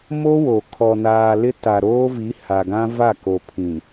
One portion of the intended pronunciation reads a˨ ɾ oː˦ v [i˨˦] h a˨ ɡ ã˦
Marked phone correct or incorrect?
correct